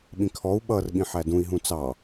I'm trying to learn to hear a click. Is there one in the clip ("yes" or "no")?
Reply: no